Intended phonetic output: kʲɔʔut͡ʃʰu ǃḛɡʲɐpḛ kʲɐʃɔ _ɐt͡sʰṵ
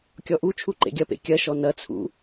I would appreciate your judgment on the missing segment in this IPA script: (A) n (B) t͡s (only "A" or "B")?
A